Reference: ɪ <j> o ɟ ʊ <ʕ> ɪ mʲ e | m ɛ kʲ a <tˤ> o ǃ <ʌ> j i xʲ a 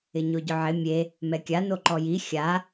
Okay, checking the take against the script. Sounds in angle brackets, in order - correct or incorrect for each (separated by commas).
incorrect, correct, incorrect, incorrect